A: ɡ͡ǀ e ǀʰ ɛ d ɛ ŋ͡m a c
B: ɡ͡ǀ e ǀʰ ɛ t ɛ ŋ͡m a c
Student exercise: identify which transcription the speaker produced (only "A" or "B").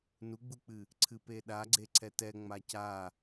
B